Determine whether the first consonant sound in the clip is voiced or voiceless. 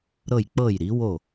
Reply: voiced